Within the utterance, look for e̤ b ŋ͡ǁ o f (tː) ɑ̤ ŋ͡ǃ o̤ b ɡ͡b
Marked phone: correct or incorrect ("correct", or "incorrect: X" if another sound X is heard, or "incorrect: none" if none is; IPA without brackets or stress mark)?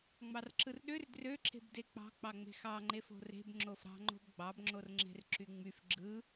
incorrect: ɾ